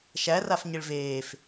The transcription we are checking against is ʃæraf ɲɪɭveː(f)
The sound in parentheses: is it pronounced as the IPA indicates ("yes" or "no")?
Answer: yes